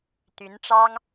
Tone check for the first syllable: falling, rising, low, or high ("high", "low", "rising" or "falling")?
rising